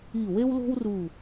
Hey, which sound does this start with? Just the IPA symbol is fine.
i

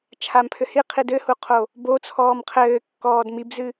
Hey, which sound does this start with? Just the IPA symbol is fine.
t͡ʃʰ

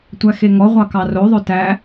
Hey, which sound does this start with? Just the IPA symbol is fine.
tʷ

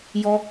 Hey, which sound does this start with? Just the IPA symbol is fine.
j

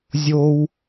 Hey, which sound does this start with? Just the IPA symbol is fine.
zʲ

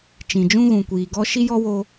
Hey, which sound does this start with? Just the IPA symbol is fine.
t͡ʃ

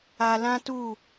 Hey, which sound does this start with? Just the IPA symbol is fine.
a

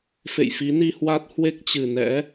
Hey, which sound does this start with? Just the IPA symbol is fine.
f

